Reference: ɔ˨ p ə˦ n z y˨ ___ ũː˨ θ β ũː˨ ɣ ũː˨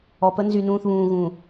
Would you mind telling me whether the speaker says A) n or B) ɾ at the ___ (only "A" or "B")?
A